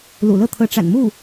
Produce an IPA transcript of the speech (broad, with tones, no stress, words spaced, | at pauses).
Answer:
lṵ˨˩lɤ˥˩ t̪ʰɤ˧˥ʈ͡ʂa̰˨˩nmu˥˩